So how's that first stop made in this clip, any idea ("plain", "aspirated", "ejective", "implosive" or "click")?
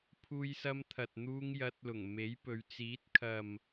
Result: aspirated